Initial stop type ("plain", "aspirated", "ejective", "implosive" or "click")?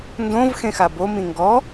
plain